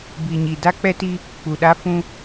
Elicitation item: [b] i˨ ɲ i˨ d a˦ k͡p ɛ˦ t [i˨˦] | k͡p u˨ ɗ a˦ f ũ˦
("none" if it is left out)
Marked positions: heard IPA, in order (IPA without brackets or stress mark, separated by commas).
b, i˦